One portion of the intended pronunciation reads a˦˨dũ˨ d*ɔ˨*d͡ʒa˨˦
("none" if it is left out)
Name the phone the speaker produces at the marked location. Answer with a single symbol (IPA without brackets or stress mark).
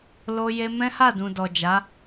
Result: ɔ˨